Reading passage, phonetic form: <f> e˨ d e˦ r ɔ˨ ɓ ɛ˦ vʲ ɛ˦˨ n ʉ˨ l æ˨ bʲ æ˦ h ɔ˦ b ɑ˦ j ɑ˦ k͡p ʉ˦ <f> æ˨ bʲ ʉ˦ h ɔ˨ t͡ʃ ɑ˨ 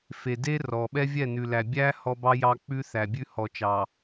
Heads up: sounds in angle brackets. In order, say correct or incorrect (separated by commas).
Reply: correct, incorrect